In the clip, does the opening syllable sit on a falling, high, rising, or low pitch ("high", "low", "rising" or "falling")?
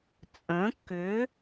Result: rising